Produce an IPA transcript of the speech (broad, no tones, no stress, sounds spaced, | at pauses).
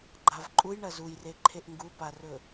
ɡ͡ǃ a v ǃʼ u j ɳ ɐ z u j r e ǃʰ e ʔ ŋ ɡ u p a r ɵ